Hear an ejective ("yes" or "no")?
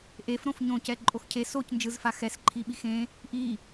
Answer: yes